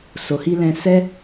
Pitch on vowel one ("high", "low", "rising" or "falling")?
low